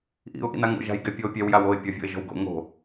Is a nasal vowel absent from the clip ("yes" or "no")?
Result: yes